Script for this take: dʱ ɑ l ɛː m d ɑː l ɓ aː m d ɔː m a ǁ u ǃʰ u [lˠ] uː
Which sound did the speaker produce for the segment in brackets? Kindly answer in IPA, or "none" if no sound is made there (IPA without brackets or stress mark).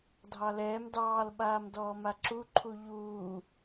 ʎ